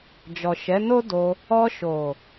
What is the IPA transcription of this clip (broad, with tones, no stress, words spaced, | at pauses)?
d͡ʒɔ˨ ʃɛ˨˦no˦ do˧ | ɔ˧ ʃo˨